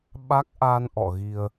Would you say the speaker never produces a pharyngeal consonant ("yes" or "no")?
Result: yes